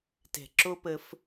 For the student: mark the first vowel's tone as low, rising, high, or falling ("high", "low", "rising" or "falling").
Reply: low